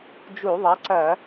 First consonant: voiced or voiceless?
voiced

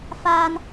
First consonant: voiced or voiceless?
voiceless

